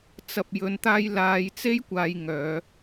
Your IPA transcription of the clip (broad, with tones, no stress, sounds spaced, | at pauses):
t͡s ɐ˨ p̚ j ɵ˨˧ n t̪ aː˧ j l aː˨˧ j t͡s e˥ j kʷ aː˧ j ŋ œː˨˧